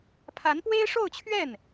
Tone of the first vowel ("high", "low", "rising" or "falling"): rising